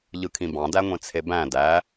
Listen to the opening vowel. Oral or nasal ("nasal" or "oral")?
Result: oral